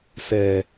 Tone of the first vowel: low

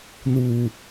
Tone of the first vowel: low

